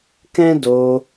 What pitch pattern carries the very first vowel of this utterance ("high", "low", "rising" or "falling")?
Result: high